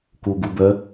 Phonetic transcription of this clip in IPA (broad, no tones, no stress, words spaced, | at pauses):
kuɡubə